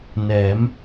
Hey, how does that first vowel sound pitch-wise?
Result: rising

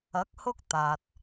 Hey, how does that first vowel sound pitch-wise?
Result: rising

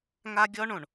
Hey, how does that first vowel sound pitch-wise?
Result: high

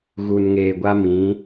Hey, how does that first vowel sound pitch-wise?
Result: low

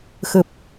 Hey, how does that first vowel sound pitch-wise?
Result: low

